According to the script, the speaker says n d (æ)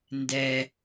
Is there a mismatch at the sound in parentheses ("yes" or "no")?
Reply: yes